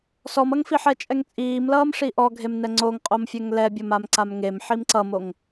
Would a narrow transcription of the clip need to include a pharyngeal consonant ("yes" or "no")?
yes